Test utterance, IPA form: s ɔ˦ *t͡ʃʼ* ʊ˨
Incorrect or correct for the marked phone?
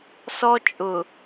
correct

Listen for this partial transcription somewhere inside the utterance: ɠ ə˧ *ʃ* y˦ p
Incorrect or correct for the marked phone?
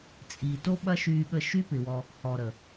correct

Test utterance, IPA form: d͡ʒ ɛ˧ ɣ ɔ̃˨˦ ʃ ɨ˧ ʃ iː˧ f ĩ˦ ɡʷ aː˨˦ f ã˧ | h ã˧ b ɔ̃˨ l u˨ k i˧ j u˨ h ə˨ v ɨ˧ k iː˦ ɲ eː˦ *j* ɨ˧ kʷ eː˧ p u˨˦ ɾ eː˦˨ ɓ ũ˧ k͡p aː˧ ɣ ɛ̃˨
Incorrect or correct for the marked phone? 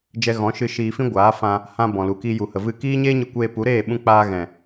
incorrect: ɲ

